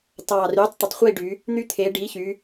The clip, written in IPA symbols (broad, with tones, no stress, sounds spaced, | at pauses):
t ɑː˨˩ r yː˩˥ tˤ t̪ ə˨˩ tˤ χʷ iː˦˨ ɖ y˩˧ | n̪ y˦˨ t̪ʰ eː˩˧ ɖ iː˩˥ ç y˩˧